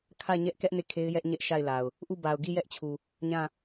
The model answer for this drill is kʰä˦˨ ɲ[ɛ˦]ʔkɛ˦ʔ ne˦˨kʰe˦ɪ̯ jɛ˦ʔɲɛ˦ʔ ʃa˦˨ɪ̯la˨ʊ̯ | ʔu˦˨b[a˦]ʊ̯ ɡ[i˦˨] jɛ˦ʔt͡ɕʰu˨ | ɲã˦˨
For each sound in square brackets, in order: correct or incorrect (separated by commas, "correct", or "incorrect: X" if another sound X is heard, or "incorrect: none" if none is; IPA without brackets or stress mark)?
correct, incorrect: a˨, correct